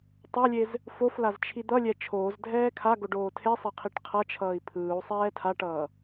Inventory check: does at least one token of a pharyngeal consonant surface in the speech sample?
no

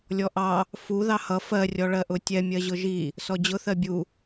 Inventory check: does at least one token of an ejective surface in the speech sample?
no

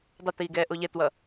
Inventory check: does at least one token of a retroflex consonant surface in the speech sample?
no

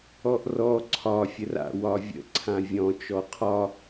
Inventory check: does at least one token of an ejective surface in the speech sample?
no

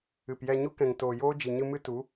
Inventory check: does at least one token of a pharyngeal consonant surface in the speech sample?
no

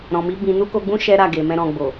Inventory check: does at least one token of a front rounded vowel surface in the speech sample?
no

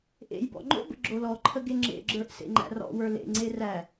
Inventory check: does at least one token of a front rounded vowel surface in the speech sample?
no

